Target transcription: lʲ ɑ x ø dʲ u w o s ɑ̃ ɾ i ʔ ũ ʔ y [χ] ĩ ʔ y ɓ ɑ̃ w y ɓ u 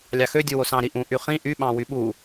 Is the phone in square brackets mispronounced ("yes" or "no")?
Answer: no